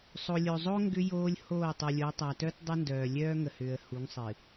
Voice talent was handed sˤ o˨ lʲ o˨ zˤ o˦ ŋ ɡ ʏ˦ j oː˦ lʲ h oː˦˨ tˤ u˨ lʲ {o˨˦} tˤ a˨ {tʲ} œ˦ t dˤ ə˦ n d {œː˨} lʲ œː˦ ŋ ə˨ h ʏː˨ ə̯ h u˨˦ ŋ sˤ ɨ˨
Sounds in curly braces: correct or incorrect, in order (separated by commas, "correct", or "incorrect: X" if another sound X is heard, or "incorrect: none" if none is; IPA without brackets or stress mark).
correct, incorrect: t, correct